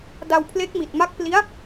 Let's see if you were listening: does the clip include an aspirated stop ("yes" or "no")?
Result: yes